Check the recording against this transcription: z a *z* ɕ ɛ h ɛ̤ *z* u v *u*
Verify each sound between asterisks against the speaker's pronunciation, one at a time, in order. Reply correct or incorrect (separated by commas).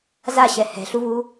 incorrect, incorrect, correct